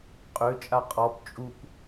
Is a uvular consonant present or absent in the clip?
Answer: present